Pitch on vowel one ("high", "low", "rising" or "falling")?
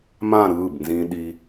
falling